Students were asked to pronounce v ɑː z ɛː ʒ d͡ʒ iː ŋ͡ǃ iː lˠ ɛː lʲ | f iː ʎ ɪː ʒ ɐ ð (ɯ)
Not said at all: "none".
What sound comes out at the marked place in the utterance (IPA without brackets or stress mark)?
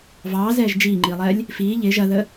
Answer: ə